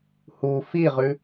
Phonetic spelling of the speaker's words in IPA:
h u f i ʁ ʉ

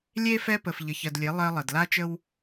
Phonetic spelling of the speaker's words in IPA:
lʲ e˦ f ɛ˦ p ə˨ f ʎ ə˨ ç ɜ˨ d lʲ e˨˦ lˠ ɜ˦ lˠ ə˨ d l a˦ t͡ʃ ə˦ w

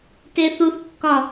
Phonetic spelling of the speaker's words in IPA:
t e θ u θ kː ɒ

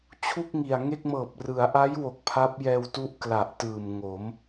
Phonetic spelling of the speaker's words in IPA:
t͡ɕʰ u˥˩ k̚ ŋ i˨˩ a̯ ŋ e˥˩ k̚ m ɤː˨˩ p̚ r ɯ˩˦ a̯ ʔ a˦˥ j w o˨˩ k̚ pʰ a˦˥ p̚ j ɛː˧ w t u˦˥ ʔ k l a˨˩ ʔ t ɯː˨˩ m ŋ o˩˦ m

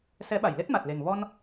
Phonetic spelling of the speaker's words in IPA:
s ɛ˨˦ ɓ a˧˩ j l e˦˥ t̚ m a˨˩ t̚ l e˨˩ ŋ v ɔ˧ n

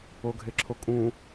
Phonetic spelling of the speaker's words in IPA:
o ɡʱ e ǁʰ o kʼ ũ

